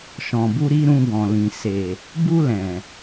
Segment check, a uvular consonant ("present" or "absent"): absent